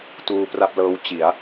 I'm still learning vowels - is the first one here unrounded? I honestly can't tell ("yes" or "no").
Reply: no